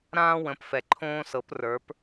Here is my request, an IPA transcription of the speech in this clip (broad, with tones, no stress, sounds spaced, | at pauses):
ɾ ãː˥ w ə̃˨˥ p f ɛ˨ ǃʰ õː˥ s ɤ˨˥ p r ə˞˨˥ p